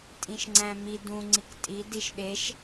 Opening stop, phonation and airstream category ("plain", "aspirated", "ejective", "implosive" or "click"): ejective